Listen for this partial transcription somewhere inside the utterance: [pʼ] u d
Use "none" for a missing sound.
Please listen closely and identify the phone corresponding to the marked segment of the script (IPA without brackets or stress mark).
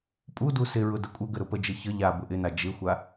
pʼ